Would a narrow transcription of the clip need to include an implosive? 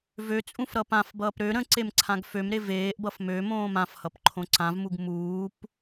no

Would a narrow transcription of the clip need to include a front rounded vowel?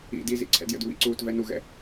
no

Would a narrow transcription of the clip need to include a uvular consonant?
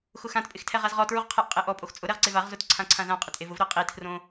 yes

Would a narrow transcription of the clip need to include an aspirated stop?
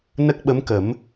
no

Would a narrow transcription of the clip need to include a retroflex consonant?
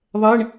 yes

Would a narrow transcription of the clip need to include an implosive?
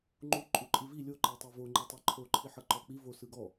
no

